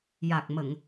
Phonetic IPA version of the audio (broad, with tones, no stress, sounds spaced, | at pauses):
j a˨˩ k̚ m ə˨˩˨ ŋ